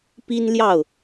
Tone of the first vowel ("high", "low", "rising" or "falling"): high